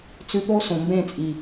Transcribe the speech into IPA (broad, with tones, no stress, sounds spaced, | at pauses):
t͡s ʉ˧ p o˦ s õ˨ m b ẽ˦˨ t͡sʼ i˨